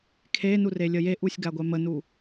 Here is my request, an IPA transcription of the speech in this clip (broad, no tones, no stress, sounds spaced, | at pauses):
kʰ e n u r e lʲ ə j e ʔ u sʲ ɡ a ɡʷ ɛ m ə n u